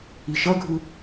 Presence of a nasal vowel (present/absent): absent